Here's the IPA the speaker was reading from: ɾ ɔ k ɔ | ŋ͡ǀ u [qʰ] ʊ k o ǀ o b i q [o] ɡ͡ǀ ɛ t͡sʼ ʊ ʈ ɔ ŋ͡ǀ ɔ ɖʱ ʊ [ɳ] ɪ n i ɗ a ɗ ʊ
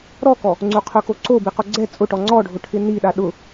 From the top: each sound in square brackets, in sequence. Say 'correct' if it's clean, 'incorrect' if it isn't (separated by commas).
correct, correct, incorrect